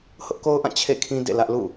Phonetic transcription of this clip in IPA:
hʊ˦ʔko˦ʊ̯ʔã˦˨ t͡ɕʰḛ˦˨kʰĩ˦ dḛ˦˨lä˦ʔlṵ˦˨

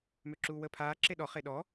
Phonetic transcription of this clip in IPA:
møǁuːwəːpʰaː ǁeɗɔ χeɗɔ

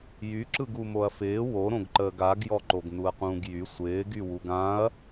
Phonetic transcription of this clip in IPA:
jyǁɯɡu moɐ̯fɪː woɾõɡǃəːɡ aɡjɔǃoɡ nuɐ̯qũːɡjy sʷɪːɡywuɡ ãɐ̯

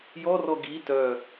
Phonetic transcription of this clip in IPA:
jɔrɔ ɡi tœ

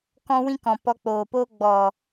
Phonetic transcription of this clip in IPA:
kɔ̃˦wĩ˦kɔ̃˨ pɔ˧k͡poː˨poː˦ ɡ͡bɔ˨

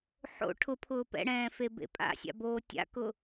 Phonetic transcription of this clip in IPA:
ħo̰ ʈʰʊpʰʊː pɛ̰ɽɛ̃ː febḛpʼa̰sʲa̰ boːtʲa̰kʊ

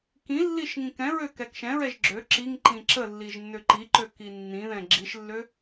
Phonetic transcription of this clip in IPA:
kĩlːiʃ ŋĩkɛ̃ɹø kɛkʃɛ̃ɹɛʒ ɡ͡ǁø ǁiŋǃĩ ǁəlːiʒ nːøǃiǃø kinːĩðɛ̃ ɡ͡ǁiʃlːø

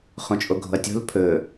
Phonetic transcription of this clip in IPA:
χõt͡ʃʼoɡʱo̤ɐ̯tʲo̤l pʰɵ

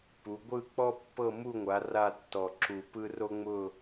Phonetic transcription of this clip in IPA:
pu˩˧ ɡʷɯ˦˨k͡pɔ˦pːɤ˦˨ mu˦˨ŋʷa˩˧ ra˦˨tːɔ˨˩ ǁu˨˩pɯ˦ ro˦ŋ͡mʊ˦˨

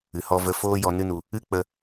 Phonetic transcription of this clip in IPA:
ɨ˨hɔ˧və˧ foː˦jɔ˧nɨ˦nu˧ | ɨ˦k͡pə˧

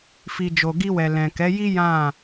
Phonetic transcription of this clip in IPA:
fi˨d͡ʒo˨ɡi˧wɛ˨ lɛ̃˨kɛ˨˦ji˦ jã˦˨

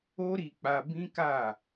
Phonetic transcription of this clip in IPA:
o˦ɾi˧k͡pa˧ bĩ˦ka˦˨

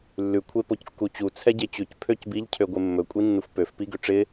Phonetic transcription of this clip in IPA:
lːʉ kʷʰepockːut͡ɕu t͡sʰɛɟet͡ɕʉc pʰøcbiʎ cʰøɡʷɪmːɵ kʷʼinːufpøf piɡøʈ͡ʂɪ

